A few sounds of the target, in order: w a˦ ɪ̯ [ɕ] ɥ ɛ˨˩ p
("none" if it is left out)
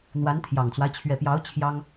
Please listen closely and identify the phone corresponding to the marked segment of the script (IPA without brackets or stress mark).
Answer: t͡ɕʰ